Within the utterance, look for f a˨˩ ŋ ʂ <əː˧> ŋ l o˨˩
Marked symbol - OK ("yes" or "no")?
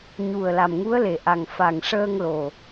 yes